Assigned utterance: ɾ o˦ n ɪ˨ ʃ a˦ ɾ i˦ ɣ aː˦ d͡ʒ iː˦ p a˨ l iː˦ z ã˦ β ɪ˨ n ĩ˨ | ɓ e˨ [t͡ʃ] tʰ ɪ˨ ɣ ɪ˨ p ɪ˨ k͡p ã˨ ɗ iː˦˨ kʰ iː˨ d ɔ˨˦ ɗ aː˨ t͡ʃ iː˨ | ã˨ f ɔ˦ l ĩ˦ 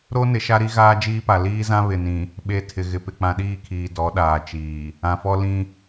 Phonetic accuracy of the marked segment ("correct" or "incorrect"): incorrect